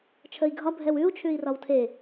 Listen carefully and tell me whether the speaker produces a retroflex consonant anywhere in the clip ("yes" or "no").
no